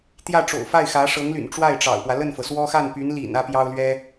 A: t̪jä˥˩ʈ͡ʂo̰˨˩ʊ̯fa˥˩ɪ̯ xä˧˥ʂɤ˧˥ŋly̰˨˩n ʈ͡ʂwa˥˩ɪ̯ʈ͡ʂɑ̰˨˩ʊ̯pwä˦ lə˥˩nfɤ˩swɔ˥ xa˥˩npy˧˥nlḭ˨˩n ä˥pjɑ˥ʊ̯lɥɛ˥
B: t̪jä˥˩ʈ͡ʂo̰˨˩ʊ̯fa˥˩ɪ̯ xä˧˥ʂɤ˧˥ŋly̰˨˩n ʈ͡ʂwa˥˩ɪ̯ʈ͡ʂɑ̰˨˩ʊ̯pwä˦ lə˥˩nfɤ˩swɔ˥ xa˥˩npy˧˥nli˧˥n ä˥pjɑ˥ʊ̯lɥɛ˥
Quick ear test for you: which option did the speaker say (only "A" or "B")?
A